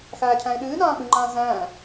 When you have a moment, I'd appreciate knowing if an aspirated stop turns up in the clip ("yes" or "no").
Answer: yes